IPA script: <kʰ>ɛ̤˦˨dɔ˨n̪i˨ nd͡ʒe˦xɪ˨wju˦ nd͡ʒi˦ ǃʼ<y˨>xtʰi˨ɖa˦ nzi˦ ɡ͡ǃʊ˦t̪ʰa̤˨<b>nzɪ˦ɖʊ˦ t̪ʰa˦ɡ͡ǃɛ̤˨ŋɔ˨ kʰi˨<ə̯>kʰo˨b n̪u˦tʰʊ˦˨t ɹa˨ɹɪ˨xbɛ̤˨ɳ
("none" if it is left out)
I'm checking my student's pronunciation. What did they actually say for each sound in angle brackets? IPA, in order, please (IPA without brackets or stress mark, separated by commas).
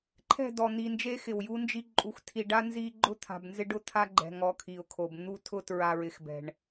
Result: ǃʰ, u˨, b, ʊ̯